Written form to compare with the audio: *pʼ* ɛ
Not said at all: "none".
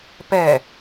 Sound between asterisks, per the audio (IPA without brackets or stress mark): p